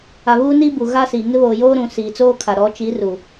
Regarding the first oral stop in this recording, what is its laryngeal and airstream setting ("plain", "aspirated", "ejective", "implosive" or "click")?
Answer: plain